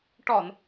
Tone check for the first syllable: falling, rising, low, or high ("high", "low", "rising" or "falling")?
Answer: low